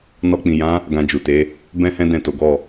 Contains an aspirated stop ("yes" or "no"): no